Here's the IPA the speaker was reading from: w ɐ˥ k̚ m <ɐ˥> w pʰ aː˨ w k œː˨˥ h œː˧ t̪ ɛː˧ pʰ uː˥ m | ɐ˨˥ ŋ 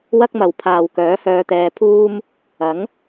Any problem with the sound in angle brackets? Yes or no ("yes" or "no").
yes